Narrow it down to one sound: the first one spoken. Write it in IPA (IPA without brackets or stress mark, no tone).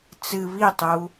t͡s